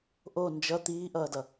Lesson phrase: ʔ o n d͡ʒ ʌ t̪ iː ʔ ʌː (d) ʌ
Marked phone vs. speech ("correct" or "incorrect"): correct